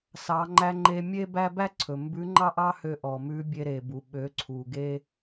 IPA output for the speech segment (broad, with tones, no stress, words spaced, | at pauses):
sɑ˩˧ŋ͡ǃæ˧ ŋ͡ǃe˧mʲe˥bæ˥ bæ˥ǀʰɵ˩ mbʉ˧˥ŋ͡ǃɑ˥ʔɑ˥hø˧ ʔɔ˩mʉ˧˥ bʲe˧ɾe˩bu˩ ɓø˩˧ǀʰu˩ɡe˧